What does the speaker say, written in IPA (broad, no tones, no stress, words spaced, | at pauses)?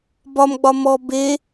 bɒmɡ͡bɒ mɔ be